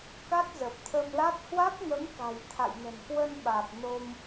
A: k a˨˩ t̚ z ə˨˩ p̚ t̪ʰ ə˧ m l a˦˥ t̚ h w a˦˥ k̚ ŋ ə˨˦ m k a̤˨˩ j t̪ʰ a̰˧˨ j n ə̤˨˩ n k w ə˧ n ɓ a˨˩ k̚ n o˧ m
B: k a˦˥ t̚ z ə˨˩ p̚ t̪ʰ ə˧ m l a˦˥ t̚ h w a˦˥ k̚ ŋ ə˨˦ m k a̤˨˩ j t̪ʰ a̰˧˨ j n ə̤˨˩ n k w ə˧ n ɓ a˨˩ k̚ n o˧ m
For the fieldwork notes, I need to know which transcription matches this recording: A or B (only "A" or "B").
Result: B